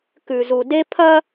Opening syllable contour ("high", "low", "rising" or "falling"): low